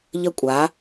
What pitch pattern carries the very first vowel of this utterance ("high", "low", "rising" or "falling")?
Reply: high